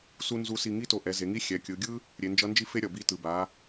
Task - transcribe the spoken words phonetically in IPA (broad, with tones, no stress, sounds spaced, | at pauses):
s u˥ n z u˧˥ s i˧ ŋ i˥ t o˧ ʔ ɛ˩˧ z e˩˧ ŋ i˧˥ xʲ ɛ˩˧ kʲ ɯ˩˧ ɡʲ ɯ˥ | ɾʲ e˩˧ n d͡ʒ ʌ˧˥ n d͡ʒ i˥ f e˥ ɾʲ ʌ˩ b i˧ t ɯ˩ b a˩˧